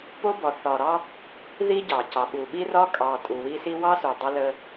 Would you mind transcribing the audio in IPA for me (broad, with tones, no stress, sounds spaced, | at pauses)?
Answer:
p o˦ b ɒ˨ θ ɒ˨ ɾ ɑ˦ | ð i˦ ɟ ɑ˨ c ɑ˨ ɓ u˨ ɓ i˦ r ɒ˦ kʼ ɑ˨ tʼ u˨ w i˦ s i˦ w ɑ˦ s u˨ dˤ ɐ˦ l ə˦